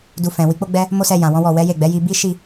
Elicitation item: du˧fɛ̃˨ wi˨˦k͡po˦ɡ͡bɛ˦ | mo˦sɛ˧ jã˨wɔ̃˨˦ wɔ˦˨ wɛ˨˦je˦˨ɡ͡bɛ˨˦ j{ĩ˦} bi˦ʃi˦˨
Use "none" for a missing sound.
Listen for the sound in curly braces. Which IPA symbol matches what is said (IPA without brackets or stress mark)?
i˦